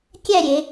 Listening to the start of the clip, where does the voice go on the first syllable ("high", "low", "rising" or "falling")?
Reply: falling